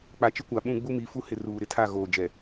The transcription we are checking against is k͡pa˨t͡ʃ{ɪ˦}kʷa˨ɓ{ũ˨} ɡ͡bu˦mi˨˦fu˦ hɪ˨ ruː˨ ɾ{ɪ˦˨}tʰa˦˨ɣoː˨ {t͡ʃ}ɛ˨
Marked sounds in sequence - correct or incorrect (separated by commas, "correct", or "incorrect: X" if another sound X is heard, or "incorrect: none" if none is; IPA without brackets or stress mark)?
correct, incorrect: ũ˦˨, correct, incorrect: d͡ʒ